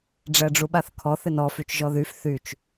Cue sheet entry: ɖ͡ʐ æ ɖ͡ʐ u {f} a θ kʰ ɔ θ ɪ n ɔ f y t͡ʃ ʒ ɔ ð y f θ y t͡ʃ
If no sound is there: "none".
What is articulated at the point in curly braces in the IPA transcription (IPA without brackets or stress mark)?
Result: ɓ